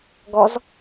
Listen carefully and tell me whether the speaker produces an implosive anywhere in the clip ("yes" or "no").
no